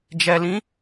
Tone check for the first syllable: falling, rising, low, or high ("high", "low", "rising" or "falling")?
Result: low